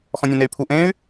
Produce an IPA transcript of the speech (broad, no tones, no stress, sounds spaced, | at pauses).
x ɔ̃ nʲ ẽ n e y̯ pʰ u ʔ ẽ y̯